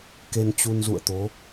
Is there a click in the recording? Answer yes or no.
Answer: no